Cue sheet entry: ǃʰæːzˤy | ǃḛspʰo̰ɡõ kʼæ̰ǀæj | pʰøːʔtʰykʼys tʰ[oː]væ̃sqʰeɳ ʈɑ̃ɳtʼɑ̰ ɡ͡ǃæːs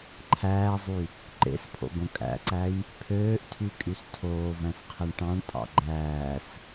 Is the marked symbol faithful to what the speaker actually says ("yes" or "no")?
yes